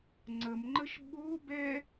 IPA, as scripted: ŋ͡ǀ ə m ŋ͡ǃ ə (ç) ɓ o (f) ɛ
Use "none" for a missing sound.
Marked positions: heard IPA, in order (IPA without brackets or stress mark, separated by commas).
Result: ʃ, b